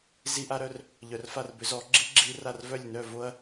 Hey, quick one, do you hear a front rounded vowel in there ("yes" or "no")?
yes